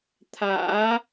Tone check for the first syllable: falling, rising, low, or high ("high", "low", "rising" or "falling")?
rising